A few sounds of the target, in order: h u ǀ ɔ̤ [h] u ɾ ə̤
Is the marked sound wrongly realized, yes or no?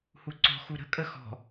yes